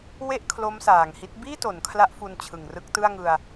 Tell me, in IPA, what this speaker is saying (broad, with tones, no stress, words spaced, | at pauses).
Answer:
we˥˩ʔ kʰlo˦˥msaː˨˩ŋhi˦˥t̚ biː˥˩to˩˦n kʰla˦˥ʔ fu˧nt͡ɕʰɯ˨˩ŋ rɯ˦˥k̚tɯ˥˩a̯ŋɯ˧a̯